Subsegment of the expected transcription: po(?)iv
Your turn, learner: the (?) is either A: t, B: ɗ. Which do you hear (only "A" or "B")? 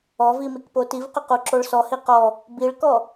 A